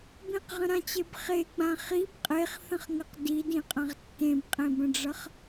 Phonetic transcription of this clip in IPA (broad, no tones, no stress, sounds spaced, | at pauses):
b ĩ q ʁ ə̃ ɾ ã t͡ɕ e b χ e ɡ͡b ã χ i b qʼ e χ θ ə̃ χ ŋ ə q d i d ĩ qʼ ã ʁ tː ẽ b qʼ ẽ b ə̃ ɖ͡ʐ ʌ χ